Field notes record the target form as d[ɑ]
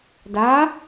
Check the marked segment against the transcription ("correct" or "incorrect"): incorrect